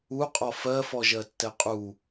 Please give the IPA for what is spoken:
u qʼ ɔ f ɜ f ɔ ʒ ɜ tː ɛ qʼ u

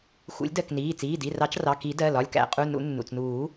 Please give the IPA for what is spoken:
x ṵ˨˩˦ lʲ d ɜ˩˧˩ k n iː˩˧˩ t͡s iː˩˧˩ d i˩˧˩ r ɑ˨˩˦ t͡ʃ r ɑ˩˧˩ k i˨˩˦ d ɜ˩˧˩ l ɒ˩˧˩ lʲ k æ̰˨˩˦ qʼ u˩˧˩ n ṵ˨˩˦ nː ṵ˩˧˩ t͡s n uː˨˩˦

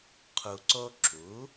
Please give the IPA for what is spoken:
qʰ u˩ ǀ o˧ ǁ u˩˥

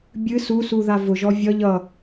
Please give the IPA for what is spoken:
bʲ ɨ s u s u ð a v ʊ ʒ ɔ vʲ ʌ ʎ ʌ

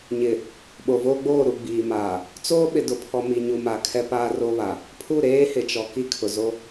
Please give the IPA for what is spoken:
ɲ ɪ˨ | ɓ o˨ v oː˦ ɡ͡b oː˦˨ ɾ u˨ ɡ͡b iː˨ m aː˨ | t͡s oː˦ ɓ ɪ˨ d ʊ˨ pʰ ɔ˨ m i˨ ɲ u˨ m a˨ kʰ ɛ˦ p aː˦ r o˦ β a˨ | pʰ u˦˨ ɾ eː˦ h ɪ˨ t͡ʃ ɔ˨ k i˦ kʰ ʊ˨ z o˦

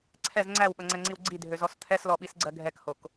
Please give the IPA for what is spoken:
ǀʰ ɛ z ŋ͡ǀ æ w ɓ ɐ ŋ͡ǀ ɛ ŋ͡ǀ i w ɡ͡ǀ i dʱ ø z ɔ s t̪ʰ ɛ s l ɔ ɓ i s ɡ͡ǀ ɜ ɡʱ ɛ k h o k

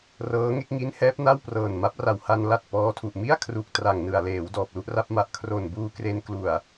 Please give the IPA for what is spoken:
r ɤː˦˥ ŋ e˦˥ k̚ ŋ i˦˥ n h ɛː˦˥ p̚ n a˥˩ w p r ɤː˨˩ n m a˦˥ p̚ r a˨˩ w h a˧ n l a˨˩ t̚ p ɔː˦˥ tʰ u˨˩ ʔ m i˥˩ a̯ kʰ r u˨˩ k̚ t r a˨˩ ŋ n ɯ˨˩ a̯ l eː˩˦ w d ɔː˨˩ p̚ l u˥˩ ʔ r a˥˩ p̚ m a˨˩ ʔ kʰ r o˨˩ n b uː˧ k r e˧ n k l u˨˩ a̯

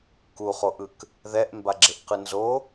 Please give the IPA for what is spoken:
k u χ o ʔ ɯ k | ð ɛ ʔ m b a ɡ͡ǁ e ʔ q ɯ n z o

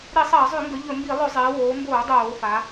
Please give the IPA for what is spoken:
ɾ i˧˩˧ sˤ ɐː˧˩˧ zˤ ʉ˧˩˧ ŋ ɡ ɵ˩˧ ʎ ɵ˧˩˧ m b i˧˩˧ lˠ ɵ˧˩˧ zˤ eː˩˧ w oː˩˧ m b oː˧˩˧ dˤ oː˧˩˧ f a˩˧

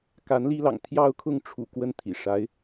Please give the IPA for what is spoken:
k a˧˥ n l i˥ l ɑ̰˨˩ ŋ t̪ʰ j ɑ˥˧ ʊ̯ kʰ ʊ˥˩ ŋ ʈ͡ʂʰ ṵ˨˩ k w ə˥˩ n t̪ʰ ḭ˨˩ ʂ a˧˥ ɪ̯

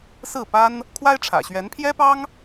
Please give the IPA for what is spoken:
s ɹ̩˥˩ p a˥ n | kʰ w a˥ ɪ̯ ʈ͡ʂʰ ä̰˨˩ ɕ ɥ ɛ˧˥ n pʰ j ɛ˥ p ɑ˥ ŋ

